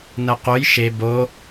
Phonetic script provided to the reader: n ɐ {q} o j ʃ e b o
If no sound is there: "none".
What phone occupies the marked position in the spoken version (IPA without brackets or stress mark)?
q